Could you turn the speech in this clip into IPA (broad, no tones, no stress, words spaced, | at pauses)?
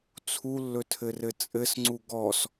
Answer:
t͡sʰulːɵtʰɘrɘ t͡sʼɘsŋ͡ǀu ɡɔs